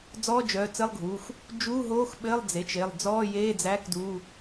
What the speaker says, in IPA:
d͡zɔː˧˥˧d͡ʒœː˩˧˩t͡sɘ˧˥˧lˠɡʱuː˩˧˩x | d͡ʒuː˧˥˧ɦoː˧˥˧x ɓɘː˧˥˧lˠd͡ze˩˧˩t͡ʃ e˩˧˩lˠd͡zɔː˧˥˧jeː˧˥˧d͡zæ˧˥˧k duː˧˥˧

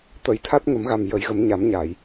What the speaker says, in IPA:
t̪ə˨˩˦jt̪ʰa˦˥t̚ŋə˨˩˦mɣa˨˩m jə˨˩˦jɣə˨˩˦mɲa˨˩˦mɲa˨˩˨j

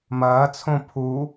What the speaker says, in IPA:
mɐːt͡sʰõ pʰu

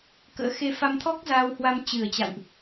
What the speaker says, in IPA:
kə̰ː˧˥xe˧fa˧mt̪ʰɔ˦˥k̚ zaː˧whwa˧m t͡ɕɨ˨˩ə̯t͡ɕa̰˧˨wʔ

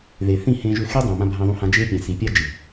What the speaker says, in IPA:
ðe˨θĩ˦˨hẽ˧ʒø˧ xe˦dˤũ˨mã˧ bʱã˧ðˤũ˧hã˧ d͡ʒe˦ pʲɛ̃˨ si˨pʲa˦d͡ʒi˨

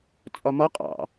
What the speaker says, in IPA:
t͡sʼɒmɒ qʼɑ̰

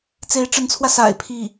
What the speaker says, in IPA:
t͡se˧˥ɪ̯ʈ͡ʂə˧˥nt͡sʰwä˧ sa̰˨˩ɪ̯ pʰi˥˩

